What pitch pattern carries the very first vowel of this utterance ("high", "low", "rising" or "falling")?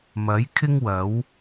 rising